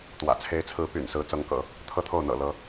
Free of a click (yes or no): yes